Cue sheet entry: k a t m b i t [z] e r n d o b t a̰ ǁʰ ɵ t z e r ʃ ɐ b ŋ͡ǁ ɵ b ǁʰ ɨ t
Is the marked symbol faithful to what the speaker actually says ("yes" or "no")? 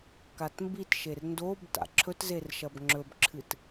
no